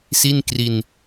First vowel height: high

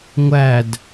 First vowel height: low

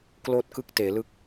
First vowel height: mid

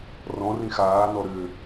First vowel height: mid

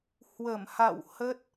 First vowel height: mid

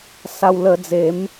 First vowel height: low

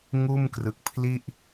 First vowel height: high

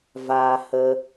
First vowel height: low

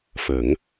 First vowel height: mid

